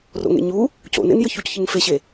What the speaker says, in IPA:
r o̰ ŋ ḛ ɲ u | c o̰ n ḛ n j ə ç u c ç ɨ ŋ f e ɕ e

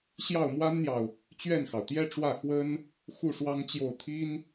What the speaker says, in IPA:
ɕ j ɑ˥˩ ʊ̯ m w a˥ n n̪ j ɑ˨ ʊ̯ | t͡ɕ ɥ ɛ˥˩ n x ɑ˩ ʊ̯ t̪ j ɛ˥ ʈ͡ʂ w ä˥˩ x w ə˥ n | x u˥˩ ʂ w ɑ˥ ŋ t͡ɕ j o˥˩ ʊ̯ t̪ʰ i˥ n

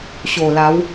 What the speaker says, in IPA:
ɕ o˨˩ l a˨˦ w

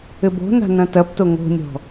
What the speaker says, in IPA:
ɘ b o̤ n a̤ n ɐ̃ t ɐ p t o ŋ o̤ nʲ ɔ̤

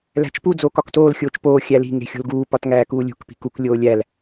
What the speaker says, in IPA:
l æ̤ t͡ʃ p u d͡z oː k ɒ k t oː l xʲ oː t͡ʃ p oː xʲ æ l i̤ ŋ e̤ xʲ o̤ l ɡ uː p ɒ t ŋ æː k uː lʲ ṳ k p i̤ k u k lʲ oː lʲ æ l

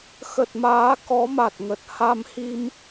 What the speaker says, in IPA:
x ə˨˩ t̚ m aː˨˦ k ɔ˨˦ m a˨˩ t̚ ŋ ə˨˩ t̚ h a˧ m h i˧ m

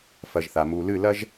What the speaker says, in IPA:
f ɐ˨ ʒ θ a˨ m u˨ l ɨ˦˨ l ɐ˦ ʒ

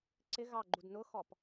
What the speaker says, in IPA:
ǀ ɪ ɣ ɑ ɡ͡ǃ u d n ʊ x ɔ p

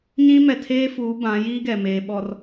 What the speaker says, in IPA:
ɲ ĩ˦ m ɛ˨ tʰ eː˦ f uː˨˦ b ã˨˦ j iː˦ ɡ ɛ˨ m eː˨ ɓ ɔ˨ r

